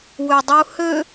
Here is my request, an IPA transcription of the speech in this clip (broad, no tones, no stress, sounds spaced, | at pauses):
w ø dˤ u h ø